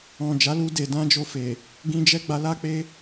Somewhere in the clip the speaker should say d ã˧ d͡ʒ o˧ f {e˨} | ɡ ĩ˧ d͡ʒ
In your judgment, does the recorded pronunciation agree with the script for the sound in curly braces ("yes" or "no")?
yes